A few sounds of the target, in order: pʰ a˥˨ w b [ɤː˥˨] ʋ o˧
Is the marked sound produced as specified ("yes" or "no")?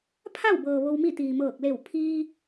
no